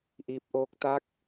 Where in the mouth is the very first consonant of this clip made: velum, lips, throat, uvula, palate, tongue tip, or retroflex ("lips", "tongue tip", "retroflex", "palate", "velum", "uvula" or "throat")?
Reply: throat